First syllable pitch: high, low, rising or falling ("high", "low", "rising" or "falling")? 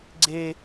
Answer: high